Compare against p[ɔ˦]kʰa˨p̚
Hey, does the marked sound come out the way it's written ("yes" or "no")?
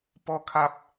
no